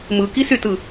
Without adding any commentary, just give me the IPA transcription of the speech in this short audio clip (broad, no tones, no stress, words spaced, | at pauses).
mɯkisytɯ